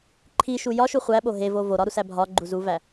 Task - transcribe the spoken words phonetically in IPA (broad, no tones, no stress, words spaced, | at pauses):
ǃʰiʃu jɒʃu χʷæɓo ɦevo voɾɒɾusæ bʱɒɡ͡ǃuzuvæ